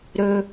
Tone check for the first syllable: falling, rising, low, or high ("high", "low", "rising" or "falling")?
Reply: low